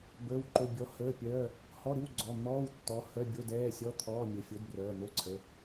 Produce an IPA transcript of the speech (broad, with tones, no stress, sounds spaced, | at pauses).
b əː˧˥˧ w ǃ o˧˥˧ bʲ ɔ˨˥ h əː˧˥˧ pʲ œː˧˥˧ | h ɔ˧˥˧ ɾ ɨ˧˥˧ w ɡ͡ǀ ɔ˩˧˩ n̪ ɔː˧˥˧ w tː ɔ˨˥ h œ˧˥˧ bʲ o˧˥˧ d ɛː˧˥˧ sʲ ɔ˧˥˧ t̪ʰ ɔː˧˥˧ mʲ ə˩˧˩ fʲ o˨˥ d b r œː˩˧˩ n̪ o˧˥˧ ǀʰ ə˩˧˩